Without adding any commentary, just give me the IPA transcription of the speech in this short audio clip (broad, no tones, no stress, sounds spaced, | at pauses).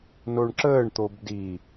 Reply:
n o ɳ ǁ əː ɳ t̪ o b d i